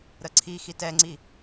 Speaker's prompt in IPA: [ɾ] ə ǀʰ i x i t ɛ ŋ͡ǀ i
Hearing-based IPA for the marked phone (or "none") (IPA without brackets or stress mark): ɾ